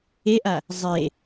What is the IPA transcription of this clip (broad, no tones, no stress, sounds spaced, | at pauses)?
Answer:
e ʔ a | zˤ e